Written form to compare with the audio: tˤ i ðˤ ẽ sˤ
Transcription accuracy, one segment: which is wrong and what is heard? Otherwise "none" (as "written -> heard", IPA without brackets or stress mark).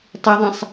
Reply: none